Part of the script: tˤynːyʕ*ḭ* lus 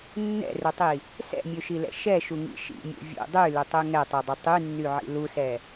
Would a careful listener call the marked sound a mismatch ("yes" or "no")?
no